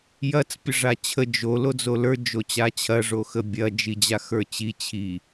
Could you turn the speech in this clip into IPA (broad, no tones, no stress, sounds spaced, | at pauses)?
j ɐ t͡s pʲ ə ʐ a t͡ɕʰ ə d͡ʒ o l o d͡z o l ə˞ d͡ʒ o t͡ɕ a t͡ɕʰ ɐ ʐ o x ə bʲ ɐ d͡ʒ i d͡ʑ a x ə˞ t͡ɕ i t͡ɕʰ i